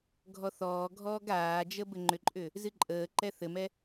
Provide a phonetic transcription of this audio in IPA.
ɡʱ ɔ θ ɔː ɡʱ ɔː ɡ aː d͡ʒ ə b ɘ ŋ͡ǃ ʏ ǃʼ ʏ | z ɨ ǃʼ əː ǃ ɛ θ ɘ m ɛ

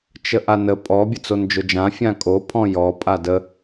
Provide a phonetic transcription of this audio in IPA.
t͡ʃ ə ʔ a n ə pʼ ɔ bʲ ə t͡s o n d͡ʒ ʊ d͡ʒ ã fʲ ã kʼ o pʰ ɔ̃ j ɔ pʼ a d ə

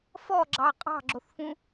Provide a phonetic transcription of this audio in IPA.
f ɔ ɡ͡ǁ ɑ qʼ ɑ̤ ɡ͡ǁ o θ f ũ

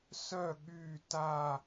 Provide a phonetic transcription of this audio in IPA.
s œ ɠ y t a

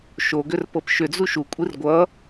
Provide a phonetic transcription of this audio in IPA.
ʃ o ɡ ʏ r p ɤ p ʃ ʏ d͡z u ʃ u kʷʼ i r ɡʷ ʌ

